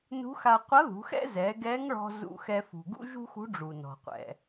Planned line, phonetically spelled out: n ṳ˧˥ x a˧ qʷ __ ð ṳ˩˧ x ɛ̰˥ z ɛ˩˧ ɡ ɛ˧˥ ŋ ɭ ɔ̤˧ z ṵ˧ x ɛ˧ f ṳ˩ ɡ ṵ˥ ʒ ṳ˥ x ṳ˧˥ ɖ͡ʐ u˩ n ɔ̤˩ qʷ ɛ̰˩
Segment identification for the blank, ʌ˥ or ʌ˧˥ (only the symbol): ʌ˧˥